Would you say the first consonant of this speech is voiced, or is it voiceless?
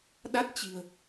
voiced